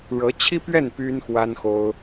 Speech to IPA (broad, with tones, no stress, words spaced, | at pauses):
ɻɤ˧˥t͡ɕʰi˥pɥɛ˥˩n py˥nxwa˥nxo˥ʊ̯